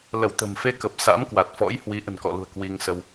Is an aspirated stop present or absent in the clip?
absent